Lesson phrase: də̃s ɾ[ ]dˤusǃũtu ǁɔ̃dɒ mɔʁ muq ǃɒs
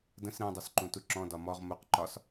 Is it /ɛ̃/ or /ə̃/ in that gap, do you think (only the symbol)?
ɛ̃